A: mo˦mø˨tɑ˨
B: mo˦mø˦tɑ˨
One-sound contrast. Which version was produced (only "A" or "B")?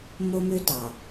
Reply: B